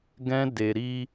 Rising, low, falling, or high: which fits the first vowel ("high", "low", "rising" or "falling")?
high